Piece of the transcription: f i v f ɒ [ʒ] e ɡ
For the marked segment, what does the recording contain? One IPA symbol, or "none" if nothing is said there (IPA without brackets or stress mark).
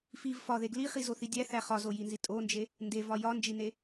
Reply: ð